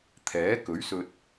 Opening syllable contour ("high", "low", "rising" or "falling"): rising